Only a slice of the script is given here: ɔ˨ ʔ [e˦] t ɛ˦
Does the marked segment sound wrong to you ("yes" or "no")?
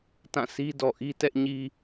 yes